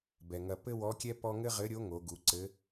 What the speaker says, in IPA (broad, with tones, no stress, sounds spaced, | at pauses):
b ɛ˩ ŋ ɐ˧ p ɘ˥ w ɔ˧˥ kʲ ɛ˥ p ɔ˥ ŋ ɘ˥ ʁ ɘ˧˥ ɾʲ o˧˥ ŋ o˩˧ ɡ u˩˧ ǀ ɘ˧˥